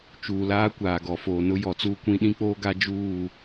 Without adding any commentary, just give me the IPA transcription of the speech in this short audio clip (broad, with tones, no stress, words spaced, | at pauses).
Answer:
t͡ʃuː˨laː˦kʷaː˨ ɡɔ˨foː˨nʊ˦ jɔ˨t͡suː˦kʷĩ˦ ɗĩ˦k͡poː˦ɡa˦ d͡ʒuː˦˨